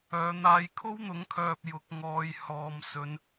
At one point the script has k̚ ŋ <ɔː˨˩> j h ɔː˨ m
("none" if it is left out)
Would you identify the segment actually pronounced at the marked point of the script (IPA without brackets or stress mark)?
ɔː˨˧